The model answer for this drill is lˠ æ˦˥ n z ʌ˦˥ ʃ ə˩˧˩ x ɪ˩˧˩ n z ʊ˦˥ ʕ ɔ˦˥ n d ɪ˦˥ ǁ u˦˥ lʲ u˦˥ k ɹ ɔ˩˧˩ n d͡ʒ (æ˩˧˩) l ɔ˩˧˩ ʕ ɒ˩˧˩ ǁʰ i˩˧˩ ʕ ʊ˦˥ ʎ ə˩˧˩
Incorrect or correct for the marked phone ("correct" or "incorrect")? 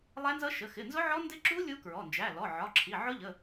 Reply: correct